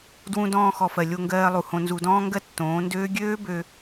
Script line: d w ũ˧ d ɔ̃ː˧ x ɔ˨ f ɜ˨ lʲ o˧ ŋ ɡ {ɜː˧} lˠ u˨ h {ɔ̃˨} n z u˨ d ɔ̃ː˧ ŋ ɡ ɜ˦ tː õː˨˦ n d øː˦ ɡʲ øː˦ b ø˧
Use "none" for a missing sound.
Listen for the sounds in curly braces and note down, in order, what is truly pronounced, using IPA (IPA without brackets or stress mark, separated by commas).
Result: ɜː˧, õ˨